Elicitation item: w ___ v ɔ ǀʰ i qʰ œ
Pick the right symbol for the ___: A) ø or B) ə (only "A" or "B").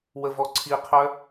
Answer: B